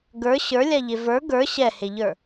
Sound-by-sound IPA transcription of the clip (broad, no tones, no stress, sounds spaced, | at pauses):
ɡ ə˞ ɕ ə˞ lʲ a ʎ e v ə˞ ɡ ə˞ ɕ ɛ h e ʎ ə˞